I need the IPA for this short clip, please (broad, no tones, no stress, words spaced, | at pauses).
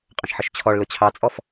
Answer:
qʼə̃ʃħəʃt͡ɕʰɔɭlʊ t͡ɕʰɑt͡sʼɔf